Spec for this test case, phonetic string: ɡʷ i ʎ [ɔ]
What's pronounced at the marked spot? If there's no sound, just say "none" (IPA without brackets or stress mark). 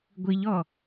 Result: ɔ